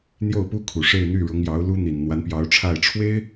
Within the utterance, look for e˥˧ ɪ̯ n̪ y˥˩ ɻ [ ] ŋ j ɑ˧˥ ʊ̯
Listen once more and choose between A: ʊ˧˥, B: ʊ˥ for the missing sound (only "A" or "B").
A